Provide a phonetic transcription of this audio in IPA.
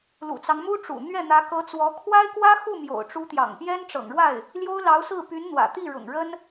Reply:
l ṵ˨˩ t͡s ɑ˦ ŋ m u˥ ʈ͡ʂ ṵ˨˩ n̪ ɥ ɛ˥˩ n̪ ä˧˥ k ɤ˧˥ t͡s w ɔ˧˥ kʰ w a˥ ɪ̯ k w ä˥ x u˥˩ m j o̰˨˩ ʊ̯ ʈ͡ʂ u˧˥ t̪ j ɑ̰˨˩ ŋ p j ɛ˥ n ʈ͡ʂ ɤ̰˨˩ ŋ ɻ w a˥˩ ɪ̯ | l j o˥ ʊ̯ l ɑ˧˥ ʊ̯ s ɹ̩˥˩ p y˧˥ n n̪ w ä̰˨˩ t̪ i˥˩ ɻ ʊ̰˨˩ ŋ ɻ ə˥ n

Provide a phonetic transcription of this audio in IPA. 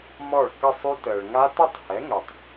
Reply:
m ɔ˥˩ ɭ k ə˥˧ sˤ y˦˥ t əː˨ ɭ ŋ a˦˥ t ɘ˥˧ tˤ h ɛ˨˥ ŋ ɵ˨ tˤ

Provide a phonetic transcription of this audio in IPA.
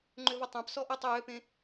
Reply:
ŋ͡ǃ ʏ v ɐ tˤ ã p s ɔ ʔ ʌ tˤ ø j ø p ẽ

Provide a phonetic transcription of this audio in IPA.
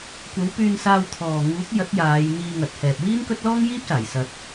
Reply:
kʷ ɐ˨˥ w p yː˧ n s aː˧ w t̪ʰ ɔː˨ ŋ uː˨˥ k̚ j ɐ˨˥ t̚ j aː˨˧ j n̪ iː˧ ŋ ɐ˨ t̚ h ɛː˨ p̚ w iː˥ n k ɵ˥ t̚ l ɔː˥ ŋ j iː˥ p̚ s aː˨˩ j s ɐ˨ t̚

